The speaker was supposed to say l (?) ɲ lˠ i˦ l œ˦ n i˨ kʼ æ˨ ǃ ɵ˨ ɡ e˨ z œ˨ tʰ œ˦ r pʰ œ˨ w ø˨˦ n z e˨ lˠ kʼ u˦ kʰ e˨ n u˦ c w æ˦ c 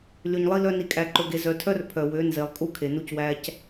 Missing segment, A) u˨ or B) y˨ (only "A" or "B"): B